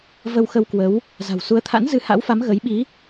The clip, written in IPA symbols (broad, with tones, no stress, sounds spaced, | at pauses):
v ə˧ w x ə˧ w k w ə˨˦ w | z a̤˨˩ w s u˨˦ ə̯ t̪ʰ a̰˧˥ n z ɨ˨˦ h a̰˧˥ w f a˨˦ m ɣ ə˨˦ j ɓ i˨˦